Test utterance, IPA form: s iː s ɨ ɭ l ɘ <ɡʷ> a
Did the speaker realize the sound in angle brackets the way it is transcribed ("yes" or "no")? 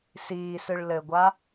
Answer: yes